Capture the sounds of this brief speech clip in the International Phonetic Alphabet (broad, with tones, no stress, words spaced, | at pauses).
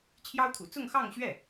t͡ɕʰjɑ˥ʊ̯t̪ʰṵ˨˩ t͡sʊ˥˧ŋxɑ˥˧ŋɕɥɛ˥˩